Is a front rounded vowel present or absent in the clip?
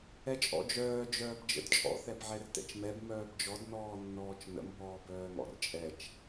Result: present